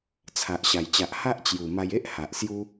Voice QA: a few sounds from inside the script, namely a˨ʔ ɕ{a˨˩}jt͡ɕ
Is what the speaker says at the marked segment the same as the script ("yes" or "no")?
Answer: yes